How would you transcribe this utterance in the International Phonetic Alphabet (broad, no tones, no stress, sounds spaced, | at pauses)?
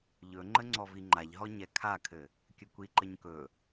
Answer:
ʎ ɵ ŋ͡ǃ ə ŋ͡ǀ ɔ v i ŋ͡ǃ a ʎ ɦ ɔ ɲ ɛ kʰ a kʰ ɘ | kʲ ɘ kʷ i ǃ ə ɲ k ɵ